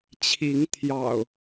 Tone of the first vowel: rising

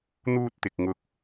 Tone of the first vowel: high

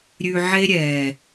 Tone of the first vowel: low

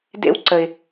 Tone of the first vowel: high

